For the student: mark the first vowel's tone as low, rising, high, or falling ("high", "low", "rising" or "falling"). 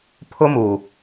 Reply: high